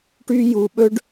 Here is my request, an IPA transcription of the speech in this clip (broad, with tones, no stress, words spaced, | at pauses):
ʈy˦ju˧ɓɵ˦ɖ